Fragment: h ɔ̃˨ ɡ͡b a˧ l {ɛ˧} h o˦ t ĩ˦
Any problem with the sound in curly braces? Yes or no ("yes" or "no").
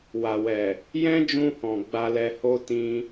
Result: no